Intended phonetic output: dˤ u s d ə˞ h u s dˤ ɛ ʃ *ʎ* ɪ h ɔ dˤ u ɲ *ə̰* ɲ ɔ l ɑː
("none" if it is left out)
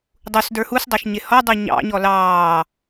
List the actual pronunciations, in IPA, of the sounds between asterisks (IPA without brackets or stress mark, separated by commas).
ɲ, ɑ̰